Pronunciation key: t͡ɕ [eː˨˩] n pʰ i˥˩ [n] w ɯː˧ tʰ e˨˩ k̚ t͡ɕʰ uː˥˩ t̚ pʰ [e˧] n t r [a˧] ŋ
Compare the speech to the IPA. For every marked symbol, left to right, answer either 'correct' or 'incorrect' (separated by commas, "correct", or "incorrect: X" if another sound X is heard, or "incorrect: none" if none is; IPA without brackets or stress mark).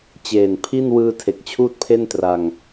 correct, correct, incorrect: e˥˩, correct